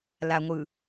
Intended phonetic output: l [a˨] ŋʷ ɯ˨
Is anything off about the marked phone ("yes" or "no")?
no